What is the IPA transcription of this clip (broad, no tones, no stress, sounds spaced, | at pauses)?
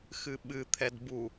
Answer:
x ɨ ɓ ɨ t̪ʰ ɛ d b u